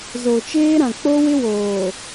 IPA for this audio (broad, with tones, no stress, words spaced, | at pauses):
zo˨t͡ʃeː˦ɾã˨ k͡po˦wɪ˦woː˨